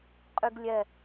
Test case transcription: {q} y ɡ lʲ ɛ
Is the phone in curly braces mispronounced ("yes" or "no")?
yes